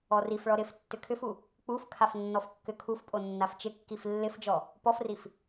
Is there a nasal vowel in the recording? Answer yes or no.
no